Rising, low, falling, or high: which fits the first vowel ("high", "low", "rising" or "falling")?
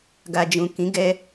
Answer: low